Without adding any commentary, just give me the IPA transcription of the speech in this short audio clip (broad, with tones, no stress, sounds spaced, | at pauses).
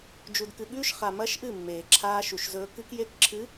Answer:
d͡ʒ u˨ d k ɨ˨ ɠ ʉː˦ ʃ χ a˨ m ɐː˦ ʃ ʔ ɨ˦˨ mː eː˨ ǁʰ aː˦ ʃ u˨ ʃ z ɵː˦ k ɨ˦ k j e˦ k ǁʰ ɨ˨˦